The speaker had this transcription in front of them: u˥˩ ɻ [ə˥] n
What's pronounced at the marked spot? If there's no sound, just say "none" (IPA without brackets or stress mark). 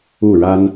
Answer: a˥